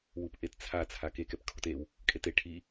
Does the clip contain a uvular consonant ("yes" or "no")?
no